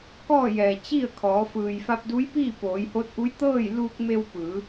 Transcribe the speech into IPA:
k ɔː˥˨ j ɛː˩ t͡ɕ i˥˨ ə̯ kʰ ɔː˩˧ f ɯː˩ j f a˧ p̚ d u˧˥ j p iː˥˨ p oː˩˧ j h o˧˥ t̚ ʔ u˧˥ j t̪ ɤː˥˨ j l uː˧ k̚ m e˧ w p ɯː˩˧

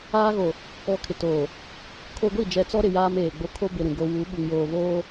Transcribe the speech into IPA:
aː˦ ɣ o˨ | ɔ˨ kʰ ɪ˨ t oː˨ | kʰ o˦ ɡʷ i˦˨ d͡ʒ ɛ˨ t͡s ɔ˦ ɾ ɪ˨ j aː˦ m eː˨ ɡ͡b o˦ kʰ o˦ b ɪ˨ ɾ ũ˨ ɡ o˦ w u˨˦ ɓ u˨ ŋ j oː˨ β oː˦

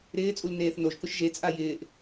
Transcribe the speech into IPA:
ɾ ɪː t͡sʼ u l n eː θ n o ʒ k ʊ ʃ ʒ e t͡sʼ a j ɪː ʔ

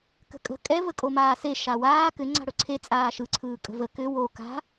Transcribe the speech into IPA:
k ə̤ kʼ ə̤ kʼ ɛ v ə kʼ o m aː s e ʃ a w aː k ʏ ŋ͡ǀ a̤ ɽ ɵ ǀʰ e t͡sʼ aː ʃ ɯ ǀʰ ɯː kʼ ə̤ v ə k ʏ w o k a̤

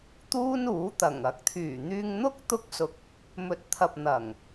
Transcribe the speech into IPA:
t̪ uː˥ n uː˨˥ t̪ ɐ˨˩ ŋ ɐ˨˥ k̚ t̪ʰ yː˨˩ n̪ yː˧ ŋ n̪ ʊ˥ k̚ t̪ ʊ˥ k̚ s ʊ˧ k̚ | m ɵ˨˥ t̚ t̪ʰ ɐ˨ p̚ n̪ ɐ˨˩ ŋ

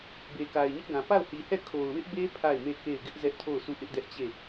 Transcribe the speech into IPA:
b e˨ k a˨ ɪ̯ ɲ ɪ˦ ʔ ɡ ã˨ p a˦˨ ʊ̯ h i˨ h ɛ˦˨ kʰ o˨ ʊ̯ w ɪ˦ ʔ b e˦ pʰ a˦˨ ɪ̯ m e˦˨ k e˦˨ ɪ̯ ɡ ɪ˦ ʔ z ɛ˦ ʔ tʰ o˦˨ ʊ̯ sʰ u˦˨ ʔ ɪ˦ ʔ d ɛ˦ ʔ t͡ɕ e˦˨

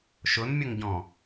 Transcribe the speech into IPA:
ʃ ʊ n mʲ ʊ ŋ ɟ ɔ̃

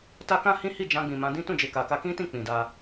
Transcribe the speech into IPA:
t a˦ k ã˦ h ĩ˦ h i˦˨ d͡ʒ ã˧ ɡ͡b ĩ˨ m ã˨˦ d ĩ˦ t ũ˦˨ d͡ʒ e˨ k a˨ k a˧ k ĩ˦ t ĩ˦˨ k͡p ĩ˨ d a˧

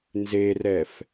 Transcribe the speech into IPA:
n z e r ɛ f

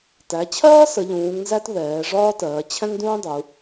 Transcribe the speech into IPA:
t æ˩˧ t͡ɕʰ ɜː˥ s ə˩˧ ʎ ũː˩˧ ŋ n z æ˥ t β ɛː˩˧ ʐ ɒː˥ t ɜː˩˧ t͡ɕʰ ɛ̃˥ ŋ d ũː˥ dˤ u˩˧

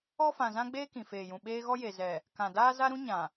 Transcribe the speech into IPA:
ɔ˦ f ã˨ z ã˦ ɡ͡b eː˦ k ĩ˨ f eː˨ j ũ˨ ɓ eː˦ ɣ ɔ˦ j e˨ z ɛ˨ | k ã˨ d aː˦ z a˦ ɾ ũ˦ ɲ ã˨

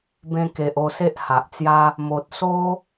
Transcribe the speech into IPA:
b ẽ˧ k e˨ ʔ o˧ s e˦ ʔ h a˨ ʔ t͡s j a˦ | m o˨ t̚ s o˦

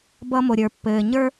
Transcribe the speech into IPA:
b ʌ˥ m o˧ ɾʲ ə˞˧ pː ɘː˧ ɲ ə˞˥

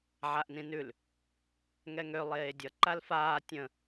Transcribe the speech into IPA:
ʕ a ʔ n ĩ n ʉ l | ŋ ɛ ŋ ø lˠ eː dʲ ʌ ǃ a l f aː tʲ ə̃

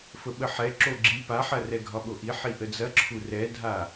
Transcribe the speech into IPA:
f ə ɓ ə ħ ɛ ǁ o ɡ͡ǁ i p a ħ ɐ r ɛ ɡʱ ɒ ɓ o ʔ i ħ i ʔ ə d͡z ɐ ǁʰ u r ɛ dʱ a

